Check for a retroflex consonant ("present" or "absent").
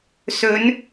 absent